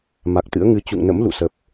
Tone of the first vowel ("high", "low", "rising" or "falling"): low